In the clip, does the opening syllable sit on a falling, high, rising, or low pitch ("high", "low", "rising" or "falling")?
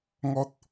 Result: high